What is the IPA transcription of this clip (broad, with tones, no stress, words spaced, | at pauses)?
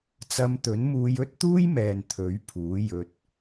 t͡sɐ˧mt̪ɵ˨˥nmuː˧j ɵ˥t̚t̪uː˥jmɛː˨n t̪ʰɵ˨˥ɥpʰuː˨˥ jɵ˧t̚